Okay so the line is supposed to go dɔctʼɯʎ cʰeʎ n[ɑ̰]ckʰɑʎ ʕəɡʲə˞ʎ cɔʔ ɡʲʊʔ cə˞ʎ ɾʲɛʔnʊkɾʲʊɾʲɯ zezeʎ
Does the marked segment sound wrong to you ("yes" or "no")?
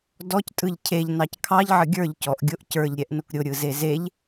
yes